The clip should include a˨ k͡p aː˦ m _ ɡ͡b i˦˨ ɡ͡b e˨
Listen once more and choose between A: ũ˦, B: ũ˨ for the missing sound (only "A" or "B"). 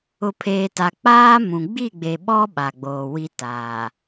B